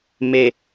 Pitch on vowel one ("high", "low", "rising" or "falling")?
low